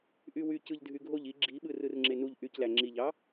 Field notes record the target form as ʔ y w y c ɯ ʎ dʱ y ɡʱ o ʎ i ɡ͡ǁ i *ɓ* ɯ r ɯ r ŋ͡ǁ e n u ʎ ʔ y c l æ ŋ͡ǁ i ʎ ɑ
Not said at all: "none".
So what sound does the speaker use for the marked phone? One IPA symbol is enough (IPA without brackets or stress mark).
ɓ